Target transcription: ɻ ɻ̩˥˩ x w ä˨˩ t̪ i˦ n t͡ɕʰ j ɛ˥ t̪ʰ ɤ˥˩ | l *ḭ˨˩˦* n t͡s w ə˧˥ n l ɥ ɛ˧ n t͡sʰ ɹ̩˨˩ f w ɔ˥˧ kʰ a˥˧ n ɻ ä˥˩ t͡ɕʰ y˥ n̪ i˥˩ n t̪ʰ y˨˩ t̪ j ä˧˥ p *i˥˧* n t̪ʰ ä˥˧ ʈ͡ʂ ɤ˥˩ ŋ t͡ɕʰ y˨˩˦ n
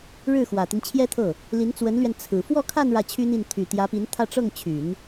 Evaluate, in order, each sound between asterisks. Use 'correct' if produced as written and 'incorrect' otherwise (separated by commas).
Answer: incorrect, incorrect